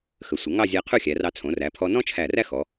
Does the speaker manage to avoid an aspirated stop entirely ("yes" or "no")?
no